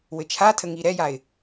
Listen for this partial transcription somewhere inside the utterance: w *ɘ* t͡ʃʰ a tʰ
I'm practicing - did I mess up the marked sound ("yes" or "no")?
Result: no